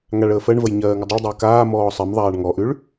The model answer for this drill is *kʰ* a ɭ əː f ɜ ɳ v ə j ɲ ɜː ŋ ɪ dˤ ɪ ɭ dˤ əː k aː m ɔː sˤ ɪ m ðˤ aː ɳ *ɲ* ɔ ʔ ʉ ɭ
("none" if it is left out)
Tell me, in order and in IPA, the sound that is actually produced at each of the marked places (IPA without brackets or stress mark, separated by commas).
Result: ŋ, ŋ